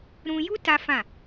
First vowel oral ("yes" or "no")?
no